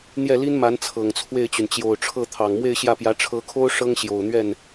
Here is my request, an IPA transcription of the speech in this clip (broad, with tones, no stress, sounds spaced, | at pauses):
n̪ j ɛ˥˩ l i˥ n m a˧˥ n t͡sʰ ɤ˨˩ ŋ t͡sʰ w e˥˩ ɪ̯ t͡ɕ y˩ n t͡ɕ j o˨˩ ʊ̯ ʈ͡ʂʰ ɤ˥˩ t̪ʰ ɑ˨˩ ŋ m w e˥˧ ɪ̯ ɕ j ä˥˩ p j ä˧˥ ʈ͡ʂʰ ɤ˧˥ kʰ o˥ ʊ̯ ʂ ɤ˥ ŋ ɕ j o˨˩ ʊ̯ n̪ ɥ ɛ˥˩ n